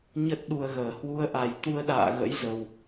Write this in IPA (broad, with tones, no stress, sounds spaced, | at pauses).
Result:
ɲ ə˦˥ t̚ ɗ u˧ ə̯ ɣ əː˨˩ h w u˧ ə̯ ʔ a˨˩ j t̪ u˧ ə̯ ɗ a̰ː˧˨ ɣ ə̰˧˥ j z ə˧ w